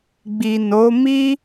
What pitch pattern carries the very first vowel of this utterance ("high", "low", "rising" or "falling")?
low